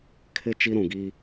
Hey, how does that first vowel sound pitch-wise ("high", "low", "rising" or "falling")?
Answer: high